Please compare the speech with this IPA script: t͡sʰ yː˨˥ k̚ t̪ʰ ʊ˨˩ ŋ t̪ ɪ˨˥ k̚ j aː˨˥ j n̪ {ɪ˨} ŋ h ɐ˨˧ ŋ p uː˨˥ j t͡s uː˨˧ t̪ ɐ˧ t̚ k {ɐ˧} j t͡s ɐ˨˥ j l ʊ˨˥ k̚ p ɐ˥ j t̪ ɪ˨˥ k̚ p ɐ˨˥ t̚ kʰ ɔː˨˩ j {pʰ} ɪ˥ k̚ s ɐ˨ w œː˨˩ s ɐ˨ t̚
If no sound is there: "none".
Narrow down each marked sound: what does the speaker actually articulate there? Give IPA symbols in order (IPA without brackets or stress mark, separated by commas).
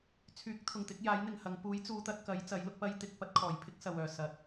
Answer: ɪ˨, ɐ˨˥, pʰ